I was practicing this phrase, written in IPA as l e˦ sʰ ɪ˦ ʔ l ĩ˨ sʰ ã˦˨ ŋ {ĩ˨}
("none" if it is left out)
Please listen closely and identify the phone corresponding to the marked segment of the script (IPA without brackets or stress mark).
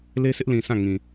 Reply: ĩ˨